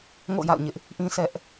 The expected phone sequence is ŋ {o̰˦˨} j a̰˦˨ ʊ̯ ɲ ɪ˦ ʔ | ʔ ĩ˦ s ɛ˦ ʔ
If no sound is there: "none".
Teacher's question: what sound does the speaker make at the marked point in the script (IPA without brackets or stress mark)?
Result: o̰˦˨